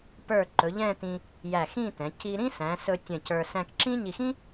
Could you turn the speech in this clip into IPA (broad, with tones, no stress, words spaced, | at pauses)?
pə˞˧˩ ǃɵ˩˧ʎɛ̃˥˧tĩ˧ | jæ˧˩xĩ˥˧tɛ̃˩˧ ci˧ ɾĩ˥sæ̃˩˧sɵ˧ tʲɛ̃˧˩cə˞˧ sæ̃˧kǁĩ˥ ɲi˧˩xĩ˥